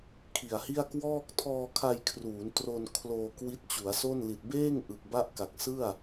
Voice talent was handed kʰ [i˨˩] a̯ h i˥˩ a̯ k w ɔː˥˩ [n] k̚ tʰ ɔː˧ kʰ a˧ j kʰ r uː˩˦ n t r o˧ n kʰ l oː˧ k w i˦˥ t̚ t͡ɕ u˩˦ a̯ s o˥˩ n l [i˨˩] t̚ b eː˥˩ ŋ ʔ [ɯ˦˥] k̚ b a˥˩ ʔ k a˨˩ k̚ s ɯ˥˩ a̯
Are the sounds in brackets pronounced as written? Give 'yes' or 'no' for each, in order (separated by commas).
yes, no, yes, no